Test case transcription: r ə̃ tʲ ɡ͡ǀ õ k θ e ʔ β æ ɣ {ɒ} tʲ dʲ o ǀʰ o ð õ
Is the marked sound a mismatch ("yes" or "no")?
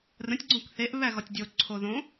no